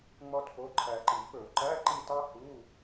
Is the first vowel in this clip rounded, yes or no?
yes